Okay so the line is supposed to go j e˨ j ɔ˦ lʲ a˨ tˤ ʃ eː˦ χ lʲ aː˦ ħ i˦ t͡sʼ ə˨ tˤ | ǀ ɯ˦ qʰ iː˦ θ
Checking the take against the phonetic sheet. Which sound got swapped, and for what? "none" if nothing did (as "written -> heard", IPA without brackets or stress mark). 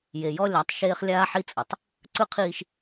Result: θ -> ʃ